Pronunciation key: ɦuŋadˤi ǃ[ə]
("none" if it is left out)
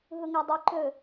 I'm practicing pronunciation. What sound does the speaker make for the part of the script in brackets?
ɵ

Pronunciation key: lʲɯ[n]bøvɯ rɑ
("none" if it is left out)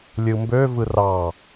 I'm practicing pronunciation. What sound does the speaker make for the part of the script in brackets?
m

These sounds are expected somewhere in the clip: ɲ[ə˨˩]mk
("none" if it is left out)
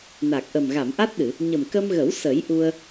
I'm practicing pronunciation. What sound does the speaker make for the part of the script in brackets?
ə˨˩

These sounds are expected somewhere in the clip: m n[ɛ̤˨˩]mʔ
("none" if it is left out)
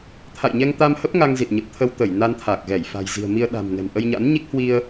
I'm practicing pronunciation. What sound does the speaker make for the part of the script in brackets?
ɛ̤˨˩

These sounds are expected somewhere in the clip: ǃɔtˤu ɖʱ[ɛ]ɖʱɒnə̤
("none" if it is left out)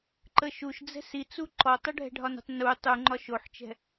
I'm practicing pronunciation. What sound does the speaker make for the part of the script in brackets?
ɛ̤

